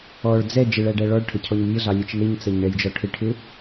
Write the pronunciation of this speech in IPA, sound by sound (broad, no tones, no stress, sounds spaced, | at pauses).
ɔ ɭ d͡z ɛ d͡ʒ ɪ ɭ æ ɖ æ ɭ ɔ ɭ ʈʰ ə cʰ ɔ ɲ nʲ ə ɮ ɑ lʲ ə t͡ʃ i ɳ ɾ i ɲ t͡s ɜ ɲ ɳ ɛ j d͡ʒ ɔ ʈʰ ɪ ʈʰ ɪ